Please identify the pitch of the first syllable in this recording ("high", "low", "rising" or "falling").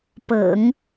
low